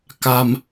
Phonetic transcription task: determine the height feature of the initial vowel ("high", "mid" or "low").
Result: low